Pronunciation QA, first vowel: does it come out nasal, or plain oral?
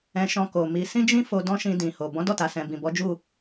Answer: nasal